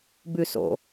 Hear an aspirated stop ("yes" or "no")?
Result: no